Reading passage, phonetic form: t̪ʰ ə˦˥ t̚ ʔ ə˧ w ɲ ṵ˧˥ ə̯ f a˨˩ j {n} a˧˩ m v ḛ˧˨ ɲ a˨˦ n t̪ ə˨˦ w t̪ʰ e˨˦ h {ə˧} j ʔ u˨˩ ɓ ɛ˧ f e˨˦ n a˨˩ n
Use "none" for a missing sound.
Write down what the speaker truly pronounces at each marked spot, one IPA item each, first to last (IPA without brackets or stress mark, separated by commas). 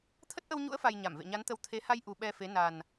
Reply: ɲ, a˧